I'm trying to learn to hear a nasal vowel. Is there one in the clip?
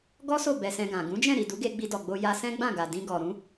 yes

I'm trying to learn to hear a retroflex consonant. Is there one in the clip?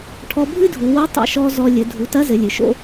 yes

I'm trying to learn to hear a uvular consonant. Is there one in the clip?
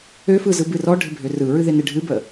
no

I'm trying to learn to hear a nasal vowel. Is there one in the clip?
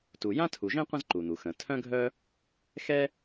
yes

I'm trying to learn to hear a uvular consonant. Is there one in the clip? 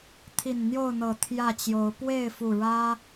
no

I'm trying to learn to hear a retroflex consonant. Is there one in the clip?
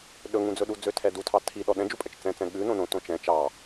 no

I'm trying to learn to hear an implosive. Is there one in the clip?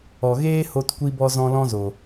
no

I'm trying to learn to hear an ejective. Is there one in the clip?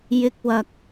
no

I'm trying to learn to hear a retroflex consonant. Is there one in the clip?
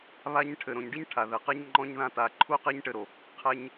yes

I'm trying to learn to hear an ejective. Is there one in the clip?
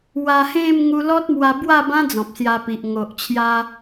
no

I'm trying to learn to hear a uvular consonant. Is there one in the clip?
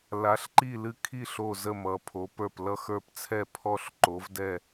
no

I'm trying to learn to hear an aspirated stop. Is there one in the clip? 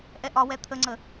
yes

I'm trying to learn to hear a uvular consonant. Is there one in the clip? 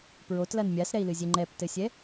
no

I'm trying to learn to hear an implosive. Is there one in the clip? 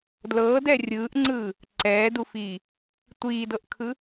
no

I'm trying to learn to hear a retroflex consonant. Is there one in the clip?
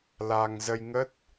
no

